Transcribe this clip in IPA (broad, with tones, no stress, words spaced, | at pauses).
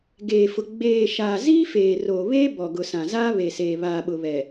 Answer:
ɡeː˨fʊ˨ ɡ͡beː˨ʃaː˨ ziː˦feː˨ roː˨βeː˦bɔ˨ɡʊ˨ sã˨zaː˦ βe˨seː˨ βaː˨ɓʊ˨βɛ˨